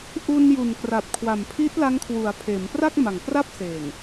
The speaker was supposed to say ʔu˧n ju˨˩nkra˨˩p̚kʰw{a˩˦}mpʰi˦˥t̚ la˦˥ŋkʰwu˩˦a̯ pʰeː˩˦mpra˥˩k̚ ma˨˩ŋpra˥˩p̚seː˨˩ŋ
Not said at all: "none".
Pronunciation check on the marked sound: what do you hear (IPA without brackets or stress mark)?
a˨˩